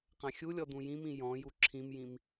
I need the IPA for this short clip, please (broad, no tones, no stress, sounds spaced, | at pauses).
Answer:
q ã xʲ u lʲ ɔ d ũ j ĩ m ĩ j ɔ̃ j u ǁʰ ĩ m j ĩ m